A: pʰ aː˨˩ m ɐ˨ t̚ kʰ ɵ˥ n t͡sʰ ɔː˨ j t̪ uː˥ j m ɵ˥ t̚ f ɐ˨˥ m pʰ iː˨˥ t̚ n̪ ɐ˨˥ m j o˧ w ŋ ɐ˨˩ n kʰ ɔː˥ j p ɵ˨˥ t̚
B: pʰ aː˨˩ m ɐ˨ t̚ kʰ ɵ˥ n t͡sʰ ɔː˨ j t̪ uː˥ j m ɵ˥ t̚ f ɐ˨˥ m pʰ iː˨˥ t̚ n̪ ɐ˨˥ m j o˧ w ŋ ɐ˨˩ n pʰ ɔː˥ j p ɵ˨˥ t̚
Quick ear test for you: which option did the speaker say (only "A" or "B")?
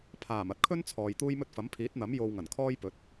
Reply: A